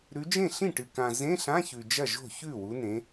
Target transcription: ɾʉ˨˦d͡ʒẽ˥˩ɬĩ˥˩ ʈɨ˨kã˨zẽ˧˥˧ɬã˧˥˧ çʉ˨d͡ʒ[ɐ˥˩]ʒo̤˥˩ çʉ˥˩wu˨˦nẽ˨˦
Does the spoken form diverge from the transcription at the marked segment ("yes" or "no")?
no